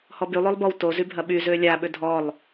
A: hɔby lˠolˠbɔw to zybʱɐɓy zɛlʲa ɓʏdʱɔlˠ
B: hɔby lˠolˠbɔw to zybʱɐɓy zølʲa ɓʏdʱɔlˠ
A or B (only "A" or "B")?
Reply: B